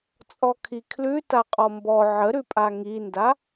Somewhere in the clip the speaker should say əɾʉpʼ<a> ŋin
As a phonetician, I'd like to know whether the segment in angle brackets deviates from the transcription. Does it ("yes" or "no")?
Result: no